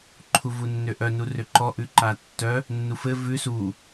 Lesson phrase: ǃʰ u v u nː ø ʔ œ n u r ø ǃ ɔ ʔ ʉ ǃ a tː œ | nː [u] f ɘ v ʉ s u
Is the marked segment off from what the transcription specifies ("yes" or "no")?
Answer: no